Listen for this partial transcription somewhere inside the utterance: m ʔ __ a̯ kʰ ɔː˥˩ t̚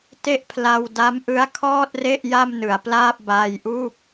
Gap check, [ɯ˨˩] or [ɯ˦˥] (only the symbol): ɯ˦˥